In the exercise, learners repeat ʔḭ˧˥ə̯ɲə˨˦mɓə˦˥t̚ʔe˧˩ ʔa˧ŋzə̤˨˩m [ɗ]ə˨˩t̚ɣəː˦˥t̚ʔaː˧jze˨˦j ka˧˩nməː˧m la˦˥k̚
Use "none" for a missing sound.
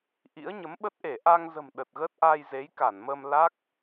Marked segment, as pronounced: ɗ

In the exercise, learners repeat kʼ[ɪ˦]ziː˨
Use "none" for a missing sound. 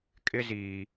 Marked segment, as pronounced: ɪ˦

